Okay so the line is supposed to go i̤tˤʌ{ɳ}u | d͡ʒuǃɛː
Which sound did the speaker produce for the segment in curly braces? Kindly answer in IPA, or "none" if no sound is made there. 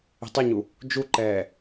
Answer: ɲ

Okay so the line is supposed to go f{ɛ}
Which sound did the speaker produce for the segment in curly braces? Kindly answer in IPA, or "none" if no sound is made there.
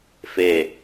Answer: e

